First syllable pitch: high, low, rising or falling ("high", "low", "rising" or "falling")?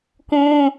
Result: high